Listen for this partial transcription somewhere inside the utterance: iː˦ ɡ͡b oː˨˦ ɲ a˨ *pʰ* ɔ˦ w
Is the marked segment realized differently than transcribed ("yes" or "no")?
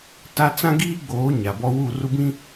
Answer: yes